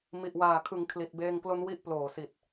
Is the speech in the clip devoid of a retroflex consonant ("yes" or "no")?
yes